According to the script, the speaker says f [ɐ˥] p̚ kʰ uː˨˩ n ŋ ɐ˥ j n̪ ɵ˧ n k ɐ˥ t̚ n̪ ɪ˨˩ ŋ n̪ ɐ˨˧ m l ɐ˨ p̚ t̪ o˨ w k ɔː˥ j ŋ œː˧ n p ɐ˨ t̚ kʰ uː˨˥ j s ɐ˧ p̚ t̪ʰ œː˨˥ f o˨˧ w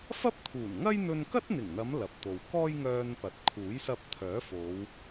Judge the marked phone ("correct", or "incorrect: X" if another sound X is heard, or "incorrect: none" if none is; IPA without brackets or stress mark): correct